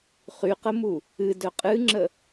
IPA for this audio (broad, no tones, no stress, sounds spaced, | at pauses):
χ y q ə m u | ɨ d œ qʼ ɨ ŋ͡ǁ ə